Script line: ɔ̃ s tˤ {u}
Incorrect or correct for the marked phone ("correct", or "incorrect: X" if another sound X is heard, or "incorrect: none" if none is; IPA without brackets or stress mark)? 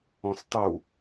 correct